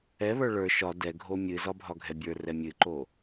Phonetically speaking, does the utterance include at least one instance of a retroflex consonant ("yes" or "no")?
yes